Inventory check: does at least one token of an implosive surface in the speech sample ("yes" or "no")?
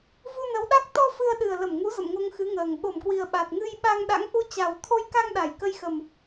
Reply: yes